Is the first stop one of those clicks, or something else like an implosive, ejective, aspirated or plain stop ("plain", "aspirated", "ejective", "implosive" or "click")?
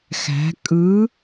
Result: ejective